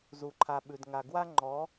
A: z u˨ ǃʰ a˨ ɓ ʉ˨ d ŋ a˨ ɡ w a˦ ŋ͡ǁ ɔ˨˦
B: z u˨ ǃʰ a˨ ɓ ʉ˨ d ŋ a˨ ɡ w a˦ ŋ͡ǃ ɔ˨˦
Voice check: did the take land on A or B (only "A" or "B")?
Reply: B